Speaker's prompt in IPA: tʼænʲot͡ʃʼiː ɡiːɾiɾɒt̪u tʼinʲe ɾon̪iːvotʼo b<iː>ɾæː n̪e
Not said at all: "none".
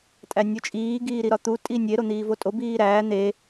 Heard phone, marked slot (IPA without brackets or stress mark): iː